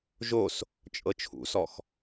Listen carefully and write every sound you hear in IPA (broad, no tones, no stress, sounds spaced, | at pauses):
ʒ o s | t͡ʃʼ ɤ t͡ʃʰ ṵ s ɔ x